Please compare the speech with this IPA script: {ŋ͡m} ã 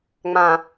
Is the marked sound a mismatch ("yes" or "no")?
no